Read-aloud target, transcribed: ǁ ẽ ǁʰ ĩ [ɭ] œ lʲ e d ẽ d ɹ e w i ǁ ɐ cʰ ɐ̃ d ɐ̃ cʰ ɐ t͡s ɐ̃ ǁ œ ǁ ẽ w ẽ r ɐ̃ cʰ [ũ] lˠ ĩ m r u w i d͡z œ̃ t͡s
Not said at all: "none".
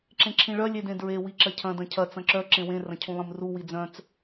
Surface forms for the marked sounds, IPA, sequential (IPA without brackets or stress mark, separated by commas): ɭ, ũ